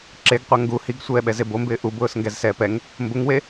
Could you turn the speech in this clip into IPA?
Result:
ǁ e ɡ qʷ a ŋ ɡ u h i ɡ sʷ ɛː ɓ ɛ z e b o m b ɪː ʔ u b ʊː s ŋ ɡ ɛ z s ɛː p ɛ ŋ | m b ʊ ŋ w e

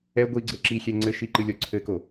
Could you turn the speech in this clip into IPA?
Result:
ɛ ɡʷ i ɡ͡ǀ ɘ ǁ i xʲ ɛ ŋ͡ǀ ɘ ʃ i ǃ ɨ lʲ ɔ ǀʰ ɘ k o

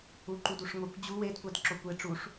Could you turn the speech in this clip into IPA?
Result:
u ǃ u d u ʂ ŋʷ e kʷ d͡ʑ u w e d kʷ æ d ǁ o kʷ e ʈ͡ʂ u ʂ

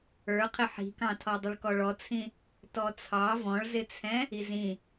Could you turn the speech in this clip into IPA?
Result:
ə˞ qʰ ɪ ħ i̤ k ɑ̃ tʰ ɔ dˤ ɪ ɭ k ɔ ɭ ɔ t͡sʰ ĩ | t ɔ t͡sʰ ɑ v ɔ̃ ɭ z ɪ t͡sʰ ɛ̃ | i z ĩ

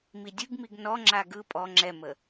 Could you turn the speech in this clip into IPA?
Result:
m i dʲ ɯ ɡ m i ɡ n ɔ ŋ͡ǁ a ɡ ɯ pʼ ɔ ŋ͡ǁ ɛ m ə

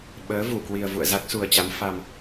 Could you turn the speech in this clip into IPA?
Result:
ɓ əː˨˦ v u˧˩ k w i˨˩ ə̯ v ṵ˧˨ ə̯ z a˦˥ k̚ s u˨˩ ə̯ t͡ɕ a˨˦ m f a˨˩ m

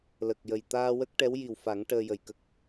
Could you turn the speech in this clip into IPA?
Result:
l ə˨˩ k̚ j ə˨˩ j t̪ aː˧ w ə˦˥ k̚ ʈ ɛ˧˥ w j i˨˩ w f a˨˩˦ ŋ ʈ əː˧ j ə˨˩ j k ə˦˥ k̚

